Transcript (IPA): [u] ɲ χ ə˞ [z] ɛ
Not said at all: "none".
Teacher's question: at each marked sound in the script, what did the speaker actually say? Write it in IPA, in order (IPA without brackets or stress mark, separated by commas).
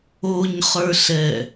o, ɬ